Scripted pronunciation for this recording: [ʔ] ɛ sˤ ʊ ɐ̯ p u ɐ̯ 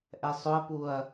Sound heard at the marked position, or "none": ʔ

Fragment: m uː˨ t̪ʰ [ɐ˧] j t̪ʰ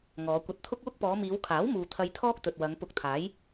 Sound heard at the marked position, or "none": ɐ˧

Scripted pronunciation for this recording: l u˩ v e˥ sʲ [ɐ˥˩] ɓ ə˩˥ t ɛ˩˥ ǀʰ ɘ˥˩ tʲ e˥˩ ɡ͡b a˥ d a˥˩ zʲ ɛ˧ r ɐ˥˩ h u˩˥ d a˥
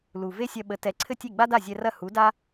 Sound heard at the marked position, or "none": ɐ˧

